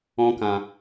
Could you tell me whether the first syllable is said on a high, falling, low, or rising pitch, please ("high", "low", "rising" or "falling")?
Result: high